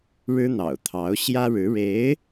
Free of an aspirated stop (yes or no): no